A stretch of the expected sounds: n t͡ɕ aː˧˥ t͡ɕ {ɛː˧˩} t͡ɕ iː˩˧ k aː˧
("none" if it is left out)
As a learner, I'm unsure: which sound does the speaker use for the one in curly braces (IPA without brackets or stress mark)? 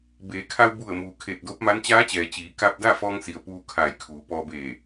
ɛː˩